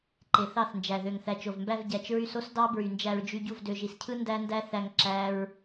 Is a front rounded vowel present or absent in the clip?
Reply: present